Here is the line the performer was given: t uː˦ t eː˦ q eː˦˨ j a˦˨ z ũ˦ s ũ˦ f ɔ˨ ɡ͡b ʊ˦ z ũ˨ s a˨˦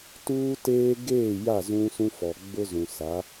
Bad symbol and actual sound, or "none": q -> ɡ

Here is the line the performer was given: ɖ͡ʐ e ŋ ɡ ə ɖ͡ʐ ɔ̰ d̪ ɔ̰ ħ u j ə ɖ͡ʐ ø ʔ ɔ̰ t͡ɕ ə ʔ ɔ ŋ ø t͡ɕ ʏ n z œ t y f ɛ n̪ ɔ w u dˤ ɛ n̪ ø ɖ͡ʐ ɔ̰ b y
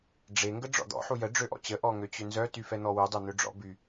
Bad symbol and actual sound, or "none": none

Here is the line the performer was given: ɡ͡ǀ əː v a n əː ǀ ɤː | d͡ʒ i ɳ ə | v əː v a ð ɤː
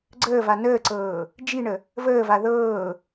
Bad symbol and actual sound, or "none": none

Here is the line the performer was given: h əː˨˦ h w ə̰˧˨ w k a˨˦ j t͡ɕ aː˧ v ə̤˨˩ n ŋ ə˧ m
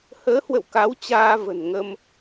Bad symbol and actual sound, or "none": j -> w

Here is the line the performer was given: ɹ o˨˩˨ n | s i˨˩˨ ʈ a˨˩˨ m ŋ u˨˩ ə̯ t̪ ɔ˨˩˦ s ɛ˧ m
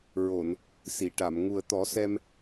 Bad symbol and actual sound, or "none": none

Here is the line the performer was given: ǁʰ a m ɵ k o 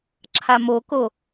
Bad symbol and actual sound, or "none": ɵ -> o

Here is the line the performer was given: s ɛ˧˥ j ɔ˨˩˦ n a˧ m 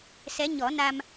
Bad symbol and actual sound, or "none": j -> ɲ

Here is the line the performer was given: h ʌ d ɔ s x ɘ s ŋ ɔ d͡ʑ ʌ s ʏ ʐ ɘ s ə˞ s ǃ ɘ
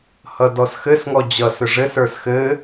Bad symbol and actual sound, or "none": ǃ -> x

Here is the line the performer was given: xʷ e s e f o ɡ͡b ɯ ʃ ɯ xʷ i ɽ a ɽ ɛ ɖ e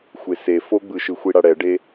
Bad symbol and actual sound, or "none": none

